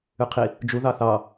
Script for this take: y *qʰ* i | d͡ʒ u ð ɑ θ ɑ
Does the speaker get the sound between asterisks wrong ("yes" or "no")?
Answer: no